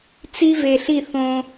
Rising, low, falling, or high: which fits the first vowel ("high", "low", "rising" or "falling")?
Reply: high